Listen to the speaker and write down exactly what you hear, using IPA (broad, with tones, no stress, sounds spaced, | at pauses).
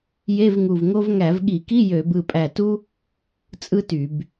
j e˧˥˧ v ŋ u˧˩ v ŋ o˥ v ŋ æ˧˩˧ v ɠ i˧˩˧ k i˧˥˧ j ø˧˩˧ b ɯ˧˩ pʼ æ˧˩ t u˥ | t͡sʼ ɯ˥ t y˧˩˧ b